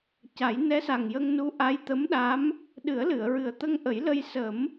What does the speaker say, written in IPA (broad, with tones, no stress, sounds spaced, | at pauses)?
c a˨˩˦ j n ɛ˧˥ s a˨˩ ŋ j ə˧ ŋ n u˧˥ ʔ a˧˥ j t̪ ə˧˥ m ɗ a˧˥ m | ɗ ɨ˨˩˦ ə̯ l ɨ˨˩˨ ə̯ ɹ ɨ˨˩ ə̯ t̪ ə˧ ŋ ʔ ə˨˩˦ j l ə˧ j s ə˨˩˦ m